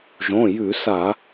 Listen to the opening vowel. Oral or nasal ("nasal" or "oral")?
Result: nasal